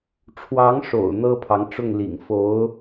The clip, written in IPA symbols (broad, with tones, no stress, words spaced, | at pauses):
ʈ͡ʂʰwɑ˧˥ŋʂo̰˨˩ʊ̯ n̪ɤ˥pʰɑ˧˥ŋʈ͡ʂʊ˥˩ŋ lḭ˨˩ŋ fo˧˥ʊ̯